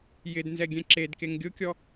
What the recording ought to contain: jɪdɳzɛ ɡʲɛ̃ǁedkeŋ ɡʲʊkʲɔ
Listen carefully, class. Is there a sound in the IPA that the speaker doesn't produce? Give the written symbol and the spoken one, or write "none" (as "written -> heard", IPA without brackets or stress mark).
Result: ɳ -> n